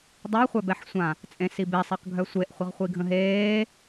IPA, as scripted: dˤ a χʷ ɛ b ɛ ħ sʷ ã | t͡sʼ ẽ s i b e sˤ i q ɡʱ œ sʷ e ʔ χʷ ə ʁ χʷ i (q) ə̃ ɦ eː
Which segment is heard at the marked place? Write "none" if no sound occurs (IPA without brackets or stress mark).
ɡʱ